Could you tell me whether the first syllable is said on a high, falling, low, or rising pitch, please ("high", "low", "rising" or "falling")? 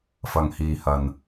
low